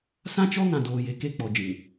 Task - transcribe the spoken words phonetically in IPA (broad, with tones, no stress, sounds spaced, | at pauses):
s ã˦ t͡ʃ ɔ˦ ŋ ã˨ d oː˨ j e˨ k e˦˨ k͡p ɔ˨ d͡ʒ ĩ˨